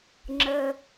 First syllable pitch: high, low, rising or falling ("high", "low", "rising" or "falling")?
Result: low